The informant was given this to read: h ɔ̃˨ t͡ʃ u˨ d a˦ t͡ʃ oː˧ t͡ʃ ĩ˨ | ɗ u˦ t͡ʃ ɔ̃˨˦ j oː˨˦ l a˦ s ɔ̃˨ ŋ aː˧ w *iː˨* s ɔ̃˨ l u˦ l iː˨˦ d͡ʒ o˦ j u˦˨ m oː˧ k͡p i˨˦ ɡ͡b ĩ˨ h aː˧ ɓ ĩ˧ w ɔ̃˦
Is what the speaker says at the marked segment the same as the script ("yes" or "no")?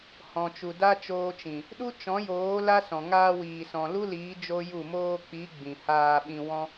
yes